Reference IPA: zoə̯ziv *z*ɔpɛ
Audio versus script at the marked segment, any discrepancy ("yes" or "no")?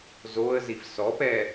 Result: yes